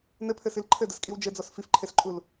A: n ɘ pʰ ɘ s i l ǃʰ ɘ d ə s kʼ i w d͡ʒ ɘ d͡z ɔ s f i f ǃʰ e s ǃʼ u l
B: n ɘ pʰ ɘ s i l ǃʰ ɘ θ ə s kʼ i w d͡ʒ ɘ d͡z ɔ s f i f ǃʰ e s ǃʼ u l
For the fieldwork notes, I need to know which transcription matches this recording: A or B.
A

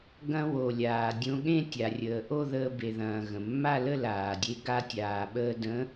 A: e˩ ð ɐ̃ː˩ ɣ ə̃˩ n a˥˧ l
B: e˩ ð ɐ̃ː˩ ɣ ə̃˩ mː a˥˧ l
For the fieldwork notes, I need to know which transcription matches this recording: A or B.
B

